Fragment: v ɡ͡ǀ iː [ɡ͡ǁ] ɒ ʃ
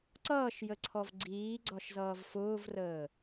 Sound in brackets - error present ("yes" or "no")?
yes